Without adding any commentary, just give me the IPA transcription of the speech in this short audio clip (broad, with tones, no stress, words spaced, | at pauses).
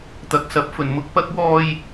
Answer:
t̪ɐ˨k̚sɐ˨˥p̚ fɵ˨˩nmʊ˧k̚pɐ˥k̚ wɔː˧j